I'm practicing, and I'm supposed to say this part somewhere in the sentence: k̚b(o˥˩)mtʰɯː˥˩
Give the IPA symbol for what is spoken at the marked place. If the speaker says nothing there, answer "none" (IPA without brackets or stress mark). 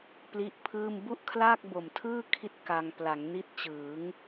o˨˩